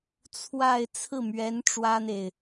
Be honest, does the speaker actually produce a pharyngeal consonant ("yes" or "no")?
no